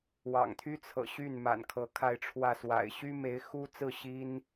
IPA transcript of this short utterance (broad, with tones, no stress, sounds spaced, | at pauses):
w ɑ̰˨˩ ŋ t̪ʰ y˥ t͡sʰ ɤ̰˨˩ ɕ y˥˩ n m a̰˨˩ n kʰ ɤ˧˥ kʰ a˥˧ ɪ̯ ʈ͡ʂʰ w ä˥˩ s w a̰˨˩ ɪ̯ ɕ y˥ m e˧˥ ɪ̯ x u˥ t͡s ɹ̩˥˩ ɕ i˥ n